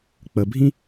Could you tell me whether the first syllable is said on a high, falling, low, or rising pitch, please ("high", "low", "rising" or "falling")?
low